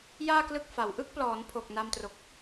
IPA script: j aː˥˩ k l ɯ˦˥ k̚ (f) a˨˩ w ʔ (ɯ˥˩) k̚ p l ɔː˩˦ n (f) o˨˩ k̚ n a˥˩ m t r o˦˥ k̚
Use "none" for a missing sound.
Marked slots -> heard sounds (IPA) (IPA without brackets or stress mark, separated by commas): f, ɯ˥˩, pʰ